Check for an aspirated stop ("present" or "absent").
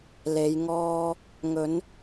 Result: absent